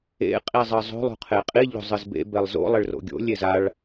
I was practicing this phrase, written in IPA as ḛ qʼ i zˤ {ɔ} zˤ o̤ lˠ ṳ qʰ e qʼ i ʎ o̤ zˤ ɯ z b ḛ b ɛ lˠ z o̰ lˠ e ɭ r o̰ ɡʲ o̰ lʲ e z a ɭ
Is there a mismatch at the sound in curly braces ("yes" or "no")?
yes